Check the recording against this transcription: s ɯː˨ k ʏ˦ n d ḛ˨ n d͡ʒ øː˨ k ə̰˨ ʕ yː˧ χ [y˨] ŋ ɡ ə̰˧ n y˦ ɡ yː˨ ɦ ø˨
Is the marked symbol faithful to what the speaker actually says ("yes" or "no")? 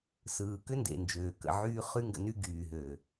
no